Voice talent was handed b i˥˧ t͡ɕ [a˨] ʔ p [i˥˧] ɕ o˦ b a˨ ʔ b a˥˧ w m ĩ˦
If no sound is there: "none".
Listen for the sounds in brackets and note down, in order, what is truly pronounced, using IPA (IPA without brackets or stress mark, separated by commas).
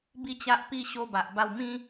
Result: a˦, i˥˧